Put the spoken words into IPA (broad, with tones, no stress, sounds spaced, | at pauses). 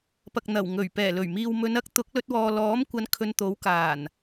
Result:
p ɐ˨ k̚ n̪ ɐ˨˩ w ŋ ɵ˨˩ ɥ p ɛː˨˩ l ɵ˨˩ ɥ m iː˨ w m ɵ˨˧ n ɐ˥ k̚ t̪ ʊ˨˥ k̚ l ɵ˧ t̚ w ɔː˨ l ɔː˨˥ m kʷ ɐ˨˧ n kʰ ɵ˧ n t̪ o˨˥ w k aː˨˩ n